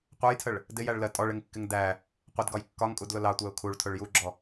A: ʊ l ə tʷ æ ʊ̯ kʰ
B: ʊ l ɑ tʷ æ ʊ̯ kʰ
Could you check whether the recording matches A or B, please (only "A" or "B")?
B